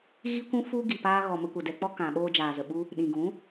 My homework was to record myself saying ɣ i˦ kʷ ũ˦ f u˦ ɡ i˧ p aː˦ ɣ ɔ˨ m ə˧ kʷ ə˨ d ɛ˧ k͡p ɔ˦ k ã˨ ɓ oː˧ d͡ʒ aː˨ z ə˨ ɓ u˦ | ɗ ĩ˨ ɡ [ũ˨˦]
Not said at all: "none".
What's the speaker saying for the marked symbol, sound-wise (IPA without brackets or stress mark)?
ũ˨˦